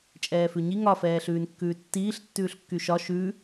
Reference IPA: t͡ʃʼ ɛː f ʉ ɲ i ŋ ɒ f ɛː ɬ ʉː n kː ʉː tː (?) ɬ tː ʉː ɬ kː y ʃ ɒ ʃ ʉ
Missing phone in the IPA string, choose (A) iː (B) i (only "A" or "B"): A